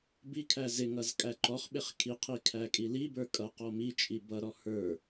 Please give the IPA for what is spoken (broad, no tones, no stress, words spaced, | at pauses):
bikʰæ zɪŋʌz kʼæǃɔχɓɪχ kʰiqʰi kʰækʼilibə˞ kʼʌqɔ mit͡ʃʼi bʌɾɔ hə˞